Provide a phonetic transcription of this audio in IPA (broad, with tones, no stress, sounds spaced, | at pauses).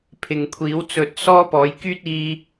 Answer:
pʰ ɪ˨ ŋ kʷʰ iː˨˥ w t͡s ɵ˧ t̚ s ɔː˥ p ɔː˨˥ j k yː˥ t̚ iː˧